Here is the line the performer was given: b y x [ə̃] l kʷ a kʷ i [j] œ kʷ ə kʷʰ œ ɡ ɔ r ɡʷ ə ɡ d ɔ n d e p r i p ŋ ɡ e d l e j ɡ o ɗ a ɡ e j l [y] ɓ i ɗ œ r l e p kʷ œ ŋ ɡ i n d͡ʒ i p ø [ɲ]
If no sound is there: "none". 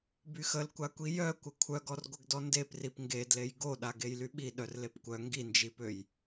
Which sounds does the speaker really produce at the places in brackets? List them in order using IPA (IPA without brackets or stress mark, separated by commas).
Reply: ə, j, y, j